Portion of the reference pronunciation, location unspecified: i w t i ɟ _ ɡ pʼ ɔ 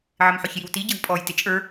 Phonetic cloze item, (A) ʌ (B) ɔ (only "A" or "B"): A